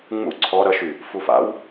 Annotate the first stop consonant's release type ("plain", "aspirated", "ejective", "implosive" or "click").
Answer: click